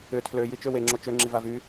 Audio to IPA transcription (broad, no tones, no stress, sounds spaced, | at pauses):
ʏ tʰ l ø j i t͡ʃ ø w e ŋ͡ǁ o t͡ʃ ø ŋ͡ǁ i v a v y